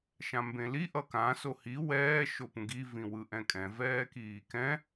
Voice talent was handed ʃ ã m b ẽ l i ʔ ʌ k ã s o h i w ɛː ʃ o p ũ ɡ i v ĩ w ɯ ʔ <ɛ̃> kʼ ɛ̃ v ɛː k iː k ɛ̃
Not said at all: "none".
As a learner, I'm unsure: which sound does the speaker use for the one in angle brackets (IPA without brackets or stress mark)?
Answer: ɛ̃